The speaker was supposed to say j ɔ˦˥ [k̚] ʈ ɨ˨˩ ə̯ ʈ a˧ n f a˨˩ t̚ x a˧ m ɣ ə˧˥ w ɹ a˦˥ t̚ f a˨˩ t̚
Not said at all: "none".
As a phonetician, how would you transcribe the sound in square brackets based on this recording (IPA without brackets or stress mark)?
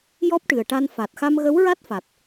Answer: p̚